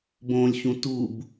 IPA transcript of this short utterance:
b õ lʲ ç ũ t u b

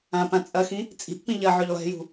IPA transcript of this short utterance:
ã p ã t͡sʼ ɐ x ĩ | t͡sʼ i̤ ʔ p ĩ ʎ ɐ ʕ ø ʎ lˠ e̤ j ṳ

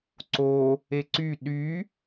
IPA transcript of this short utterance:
ǀ o | e ǀ y ɗ y

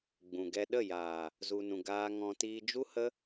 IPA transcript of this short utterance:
ɡ͡b ũ˨ ɡ ɛ˧ ɗ ə˦˨ j aː˨ | z u˨ n ũ˨ ɡ aː˧ ŋ ɔ̃˧ t iː˧ d͡ʒ u˦ h ə˦

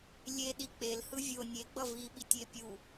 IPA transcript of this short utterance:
lʲ e ɗ i k͡p e l h ɯ vʲ o nʲ e ɡ͡b ʌ v i ɓ i tʲ e pʲ u

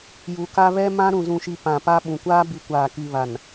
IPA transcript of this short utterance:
j u˨ k a˦ β ɛ˦ m ã˦ ɾ ũ˨ z ũ˨ ʃ i˨ p ã˨ p a˦ ɓ ũ˨ kʷ aː˦ b i˨ kʷ aː˨ k i˨ β a˨ n

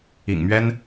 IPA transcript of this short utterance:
ḭ˨˩ ŋ m ɥ ɛ˥ n

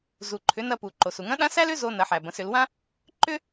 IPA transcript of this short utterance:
z u˩ ǃʰ ʏ˩˧ n ɐ˧ p u˩ ǃ o˩ s u˩ ŋ ɐ̃˧˥ ɗ ã˧˥ s æ˥ l ʏ˥ z o˧ n ɐ˩˧ ħ æ˩ b ɐ̃˩˧ s ʏ˩˧ l w ã˥ | ǃ ʏ˥

